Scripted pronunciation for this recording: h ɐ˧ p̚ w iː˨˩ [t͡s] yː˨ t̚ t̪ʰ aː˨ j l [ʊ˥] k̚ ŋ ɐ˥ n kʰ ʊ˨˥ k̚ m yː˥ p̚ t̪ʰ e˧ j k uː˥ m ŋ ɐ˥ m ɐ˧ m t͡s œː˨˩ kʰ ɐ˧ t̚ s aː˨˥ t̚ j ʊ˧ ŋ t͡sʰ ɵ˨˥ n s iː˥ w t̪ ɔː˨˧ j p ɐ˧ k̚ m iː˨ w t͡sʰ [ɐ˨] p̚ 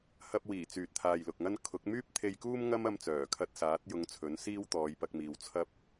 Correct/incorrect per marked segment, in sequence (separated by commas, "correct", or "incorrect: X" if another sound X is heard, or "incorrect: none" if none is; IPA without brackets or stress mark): correct, incorrect: ʊ˨, incorrect: ɐ˥